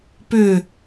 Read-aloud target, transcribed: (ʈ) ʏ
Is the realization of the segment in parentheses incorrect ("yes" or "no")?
yes